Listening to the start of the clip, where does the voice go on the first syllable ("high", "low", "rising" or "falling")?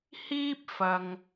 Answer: high